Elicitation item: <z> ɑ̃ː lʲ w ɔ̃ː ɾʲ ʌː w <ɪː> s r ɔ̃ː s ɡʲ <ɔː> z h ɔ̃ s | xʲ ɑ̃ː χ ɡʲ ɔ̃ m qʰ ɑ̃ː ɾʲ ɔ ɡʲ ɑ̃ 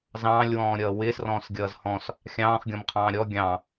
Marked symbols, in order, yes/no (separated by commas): yes, yes, no